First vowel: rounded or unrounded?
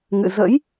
unrounded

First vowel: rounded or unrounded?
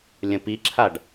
unrounded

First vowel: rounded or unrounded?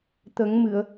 unrounded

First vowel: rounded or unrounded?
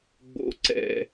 rounded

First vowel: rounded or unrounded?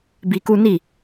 unrounded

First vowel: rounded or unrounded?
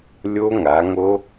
rounded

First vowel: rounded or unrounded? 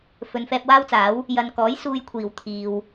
rounded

